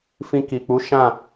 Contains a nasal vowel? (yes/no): yes